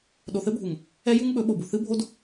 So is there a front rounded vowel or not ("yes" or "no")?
no